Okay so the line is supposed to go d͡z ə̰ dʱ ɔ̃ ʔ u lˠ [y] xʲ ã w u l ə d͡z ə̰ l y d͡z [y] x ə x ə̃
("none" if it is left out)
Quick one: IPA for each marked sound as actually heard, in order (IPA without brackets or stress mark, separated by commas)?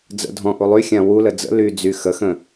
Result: y, y